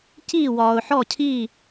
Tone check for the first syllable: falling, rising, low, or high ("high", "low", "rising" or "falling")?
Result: falling